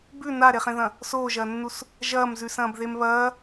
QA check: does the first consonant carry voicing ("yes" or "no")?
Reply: yes